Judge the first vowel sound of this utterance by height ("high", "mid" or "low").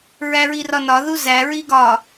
low